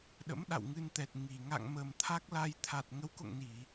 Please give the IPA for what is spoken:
ɗ ə̰˧˥ m ɗ a̰˧˨ w ŋ ɨ˧ n t̪ ɛ˨˩ t̚ ŋ i˨˩ ŋ a̰˧˨ ŋ m ə˨˩ m t̪ʰ a˦˥ k̚ l a˧ j t̪ʰ a˨˩ t̚ ŋ ə˨˦ w k o̰˧˨ ŋ n i˧˩˨

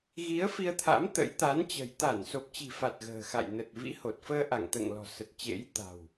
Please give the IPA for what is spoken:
ɣ i˨˦ ə̯ f i˧ ə̯ t̪ʰ a̰˧˥ m t̪ ə̰˧˥ j t̪ a˨˦ n t͡ɕ ə̤˨˩ j t̪ a˧˩ n s o˨˩ p̚ t͡ɕ i̤˨˩ f a˨˩ t̚ ɣ ə̤ː˨˩ x a̰˧˨ j n ə˨˩ t̚ v ḭ˧˥ h o˨˩ t̚ f əː˧ ʔ a˧˩ ŋ t̪ ə̰ː˧˨ ŋ l ɔ̤˨˩ s ə˨˩ t̚ t͡ɕ ḛ˧˥ j t̪ a̤˨˩ w

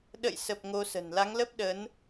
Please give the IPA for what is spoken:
ɗ ə̰˧˨ j s ə˨˩ p̚ ŋ o˧ s ə̤˨˩ n l a˨˦ ŋ l ə˦˥ p̚ ɗ ə˨˦ n

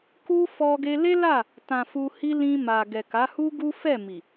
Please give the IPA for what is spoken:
k u˦ f ɔ˧ ɡ e˧ l e˦ l a˦˨ | t ã˨ f u˧ h i˦ l ĩ˧ m a˨ ɡ ɛ˨ k a˨˦ h u˦ ɡ u˦ f ɛ˦˨ m i˨

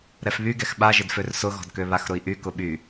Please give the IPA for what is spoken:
ɾ ɛ f β y ɡ ɛ x ɓ a ʒ ɪ d f ø r s ʊ ɣ ɔ̤ d k ø β a x ɾ ʊ i̯ ʔ y k ʊ ɓ y

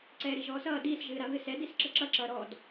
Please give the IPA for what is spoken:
ǀ ɛː ɾ i ʒ ɔː s ʌː d iː s ʒ ɨː ɾ a β ɨ s ɛ d i s ǁ ə ǁ ʌ ǁ ʌː ɾ ɔ d

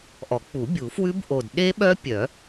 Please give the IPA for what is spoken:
ʔ ɔ˨˩˦ k͡p u˨˩˦ bʲ u˨˩˦ f w ʉ˦˥ b ʔ o˨˩ d ɗ e˦˥ ɓ œ˦˥ pʲ œ˨˩˦

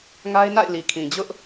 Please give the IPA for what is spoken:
ŋ a˦ ɪ̯ n a̰˦˨ ɪ̯ l i˨ kʰ ĩ˨ d͡ʑ ʊ˦ ʔ

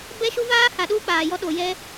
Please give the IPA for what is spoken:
b ɛ˦ ʃ u˦ v aː˦ h a˨ ɗ uː˦ k͡p aː˨ j ɔ˦ ɗ o˨ j ɛ˦

